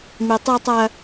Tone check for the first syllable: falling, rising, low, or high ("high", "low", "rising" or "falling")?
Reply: low